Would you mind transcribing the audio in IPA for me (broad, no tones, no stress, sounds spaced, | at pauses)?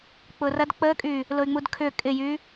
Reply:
k͡p ʊ r ɐ d k͡p ə kʼ y | l ʊ y̯ ŋ͡m u d kʰ ʏ kʼ ɪ j y